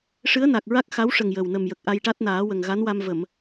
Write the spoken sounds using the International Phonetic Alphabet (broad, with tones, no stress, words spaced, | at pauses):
ʂɨ˧˥ə̯na˨˩k̚ɹa˦˥k̚ xa˧˥wʂə˨˩ŋ jə˨˩wnə˨˩mjə˨˩k̚ ʔa˧jʈa˦˥t̚naː˨˩˦wə˨˩ŋ ɣa˧˥nwa˧mvə˨˩˨m